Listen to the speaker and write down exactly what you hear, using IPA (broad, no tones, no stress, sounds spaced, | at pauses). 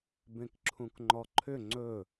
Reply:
b ẽ k ǁʰ ũ k ŋ͡ǃ ɔ ǃʰ ʏ ŋ͡ǀ ɵ